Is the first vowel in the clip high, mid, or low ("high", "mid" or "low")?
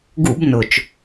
high